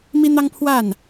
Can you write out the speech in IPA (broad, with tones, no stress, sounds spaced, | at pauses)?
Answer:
m i˦ n̪ ɑ˦ ŋ pʰ w a˥˨ n